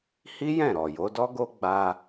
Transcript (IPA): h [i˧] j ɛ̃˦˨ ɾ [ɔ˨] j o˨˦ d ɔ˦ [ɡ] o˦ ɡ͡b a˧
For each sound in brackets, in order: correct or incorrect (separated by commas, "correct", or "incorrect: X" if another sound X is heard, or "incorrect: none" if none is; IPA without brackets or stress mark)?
incorrect: i˦, correct, correct